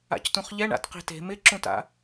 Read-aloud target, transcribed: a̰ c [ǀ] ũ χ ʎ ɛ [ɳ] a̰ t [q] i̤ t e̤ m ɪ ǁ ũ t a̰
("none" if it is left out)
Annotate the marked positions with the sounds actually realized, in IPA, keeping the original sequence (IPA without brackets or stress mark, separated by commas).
t, ɳ, q